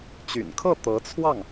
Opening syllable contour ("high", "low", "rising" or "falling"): low